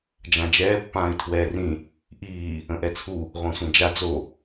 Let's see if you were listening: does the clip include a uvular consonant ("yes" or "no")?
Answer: yes